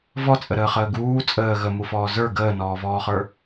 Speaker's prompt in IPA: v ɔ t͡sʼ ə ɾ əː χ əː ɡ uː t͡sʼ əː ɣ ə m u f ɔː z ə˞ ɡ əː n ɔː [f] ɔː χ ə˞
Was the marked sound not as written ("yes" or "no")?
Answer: yes